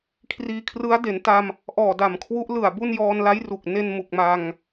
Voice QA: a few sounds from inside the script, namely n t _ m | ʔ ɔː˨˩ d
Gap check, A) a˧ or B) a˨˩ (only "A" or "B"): A